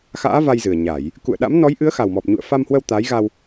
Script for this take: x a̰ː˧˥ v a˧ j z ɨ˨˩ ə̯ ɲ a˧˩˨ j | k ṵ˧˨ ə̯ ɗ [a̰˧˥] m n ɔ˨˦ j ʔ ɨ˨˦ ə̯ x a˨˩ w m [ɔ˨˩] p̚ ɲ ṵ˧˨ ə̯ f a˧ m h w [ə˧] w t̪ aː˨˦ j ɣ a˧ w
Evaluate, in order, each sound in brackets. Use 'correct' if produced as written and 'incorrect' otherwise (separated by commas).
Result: correct, correct, correct